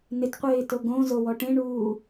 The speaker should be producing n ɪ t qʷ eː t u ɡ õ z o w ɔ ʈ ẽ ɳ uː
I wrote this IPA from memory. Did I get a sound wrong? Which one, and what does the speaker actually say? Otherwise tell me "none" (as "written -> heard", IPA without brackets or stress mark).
u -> o